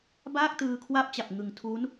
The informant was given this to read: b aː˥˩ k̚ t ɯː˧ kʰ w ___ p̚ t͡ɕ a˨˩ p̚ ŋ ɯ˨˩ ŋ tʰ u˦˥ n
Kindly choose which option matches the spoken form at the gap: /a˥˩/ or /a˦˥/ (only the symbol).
a˦˥